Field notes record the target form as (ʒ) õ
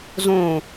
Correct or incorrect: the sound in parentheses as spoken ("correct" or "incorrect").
incorrect